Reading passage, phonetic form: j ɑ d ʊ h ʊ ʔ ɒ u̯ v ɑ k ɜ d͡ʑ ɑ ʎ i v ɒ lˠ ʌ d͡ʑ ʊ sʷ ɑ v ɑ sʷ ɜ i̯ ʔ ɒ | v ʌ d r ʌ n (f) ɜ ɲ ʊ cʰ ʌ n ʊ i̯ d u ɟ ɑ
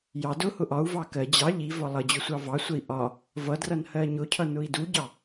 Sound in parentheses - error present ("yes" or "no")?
yes